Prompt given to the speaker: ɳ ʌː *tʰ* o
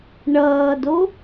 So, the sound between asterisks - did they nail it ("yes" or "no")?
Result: no